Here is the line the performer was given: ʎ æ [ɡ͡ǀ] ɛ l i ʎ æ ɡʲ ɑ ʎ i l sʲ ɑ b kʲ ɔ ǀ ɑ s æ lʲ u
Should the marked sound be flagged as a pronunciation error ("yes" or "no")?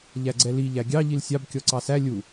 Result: no